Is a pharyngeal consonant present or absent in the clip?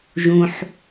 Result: present